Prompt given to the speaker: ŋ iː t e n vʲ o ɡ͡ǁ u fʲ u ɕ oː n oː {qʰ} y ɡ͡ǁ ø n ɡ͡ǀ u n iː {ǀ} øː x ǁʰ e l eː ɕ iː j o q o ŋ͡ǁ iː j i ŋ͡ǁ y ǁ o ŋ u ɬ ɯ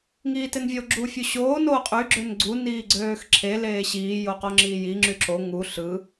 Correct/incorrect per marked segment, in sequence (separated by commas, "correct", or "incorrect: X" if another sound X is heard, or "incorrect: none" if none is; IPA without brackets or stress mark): incorrect: qʼ, incorrect: ɡ͡ǀ